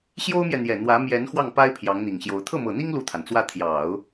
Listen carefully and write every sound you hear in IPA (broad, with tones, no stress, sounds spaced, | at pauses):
ɕ j o˥ ʊ̯ m j ɛ˨ n̪ j ɛ˨˩ n̪ w ä˧˥ m j ɛ˧˥ n x w ɑ˥˩ ŋ p a˥ ɪ̯ pʰ j ɑ˧˥ ŋ n̪ i˨˩ ŋ ɕ j o˧˥ ʊ̯ t̪ʰ ɤ˥˩ m ɤ˨˩ n̪ i˥ ŋ l u˥˩ t̪ʰ a˩ n t͡s w ä˥˩ t̪ʰ j ɑ˨˩˦ ʊ̯